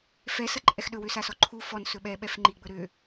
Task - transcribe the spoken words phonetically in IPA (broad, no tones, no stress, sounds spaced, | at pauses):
f ɛ s ɐ ǃʼ ɛ x ɗ ɵ w ø s a s ɔ ǃʰ u f ɔ n s ɵ ɓ ɛ ɓ ɛ f ŋ͡ǃ i ɡ͡b ɵ ɾ ø